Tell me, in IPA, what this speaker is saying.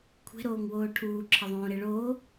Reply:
kʷʰ e̤ ɾ oː ŋ w oː ʈʰ uː ǁʰ ɐ ðˤ õː ɾ e ɭ oː

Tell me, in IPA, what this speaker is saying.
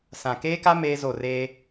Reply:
s ã˨ k eː˦ k a˦ m eː˦ z o˦˨ r eː˦

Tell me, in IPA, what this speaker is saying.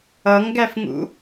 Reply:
ʌ ŋ ɡ æ f ŋ ṵ

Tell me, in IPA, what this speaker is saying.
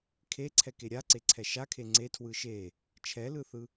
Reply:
kʰ e ǀʰ ɛ k e ɾʲ a ǀ e ǀʰ ɛ ʃ a kʰ e ŋ͡ǀ e tʰ w ɯ ʃ e | t͡ʃʰ ɛ l ɯ θ ɯ

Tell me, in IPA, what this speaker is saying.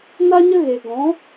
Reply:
n a˦ ɲ ə˦ ɣ e˨ ɡ ɔ̃˨˦

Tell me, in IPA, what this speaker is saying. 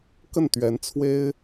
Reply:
k ə˥˩ n t̪ ɥ ɛ˧˥ n t͡sʰ w e˥ ɪ̯

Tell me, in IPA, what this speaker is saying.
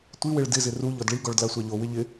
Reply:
tʷ i w ɪ ɭ d ɪ z ɪ r u ʎ ɔ d ɭ i ɡ ɔ ɭ d l a sʷ a ʎ o w ɪ ʎ ɪ

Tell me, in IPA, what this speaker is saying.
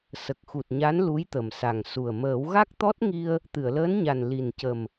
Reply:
s ə˨˩ k̚ x u˨˩ t̚ ɲ a˧˥ n l u˧˥ j t̪ ə˨˩ m s a˨˩ ŋ s u˨˩ ə̯ m əː˨˩˦ w ɣ a˦˥ k̚ t̪ ɔ˦˥ t̚ ŋ i˧ ə̯ | t̪ ɨ˨˩˨ ə̯ l əː˧˥ n ɲ a˨˩ n l i˨˩ n c ə˨˩ m

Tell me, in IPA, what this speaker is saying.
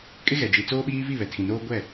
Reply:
kʼ ɪ˦ ɣ ɛ˨ d͡ʒ i˨ t͡s oː˦ ɓ iː˦ v i˦˨ β ɛ˨ tʰ ĩ˨ n oː˦ ɡʷ ɛ˦˨

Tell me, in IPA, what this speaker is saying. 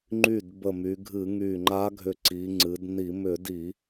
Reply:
ŋ͡ǃ y˧˩ d b ə˧˩ m y˩˧ ɡʱ ɨ˧˩˧ ŋ y˧˩ ŋ͡ǃ a˧˥ ɡʱ ʏ˧˩ ǀ i˩˧ ŋ͡ǀ ɨ˩˧ d n i˧˩˧ m ʏ˧˩˧ d i˧˩˧

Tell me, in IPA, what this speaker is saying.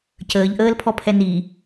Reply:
c əː ʎ ʔ əː l pʰ ɔ pʰ ɛ n i

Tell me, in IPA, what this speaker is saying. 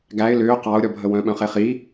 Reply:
ɡ æ ɪ̯ l ʏː q ɑ ʊ̯ ɾʲ ɔ bʱ ə w œ̃ ɓ œ̃ χ e χ i

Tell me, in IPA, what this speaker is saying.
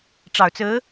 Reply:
ʈ͡ʂ ɑ˨˩ ʊ̯ t͡s ɹ̩˧˥

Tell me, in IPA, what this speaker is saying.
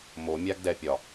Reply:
m o mʲ a ɡ d ɛ pʲ ɒ

